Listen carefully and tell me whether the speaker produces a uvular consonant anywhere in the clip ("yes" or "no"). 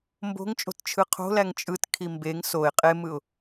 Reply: yes